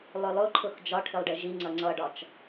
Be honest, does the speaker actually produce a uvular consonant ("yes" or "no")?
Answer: no